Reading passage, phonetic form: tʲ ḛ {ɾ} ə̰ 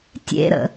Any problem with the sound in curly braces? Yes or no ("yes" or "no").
no